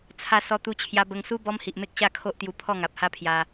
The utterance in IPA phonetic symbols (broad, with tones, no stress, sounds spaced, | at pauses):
t͡sʰ a˧ s ɔ˧ t̪ u˧ t͡ɕʰ j a˧ b ə˧ ŋ s u˦ b ɔ˦ m h i˨ ʔ m e˦ k̚ ɕ a˥˧ kʰ o˦ ʔ t̪ j u˧ pʰ ɔ˥˧ ŋ a˨ p̚ h a˦ pʰ j a˧